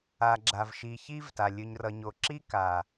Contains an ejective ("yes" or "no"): no